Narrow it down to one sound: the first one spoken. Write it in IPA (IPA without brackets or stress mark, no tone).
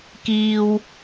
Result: k